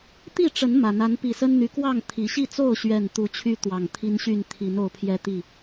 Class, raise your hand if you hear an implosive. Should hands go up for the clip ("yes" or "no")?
no